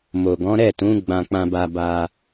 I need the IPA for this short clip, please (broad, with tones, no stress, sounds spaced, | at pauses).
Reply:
m o˨ ɡ ɔ̃˨˦ ɾ ɛ˦˨ t ũ˨˦ ɡ͡b ã˧ k͡p ã˧ b a˧ b a˧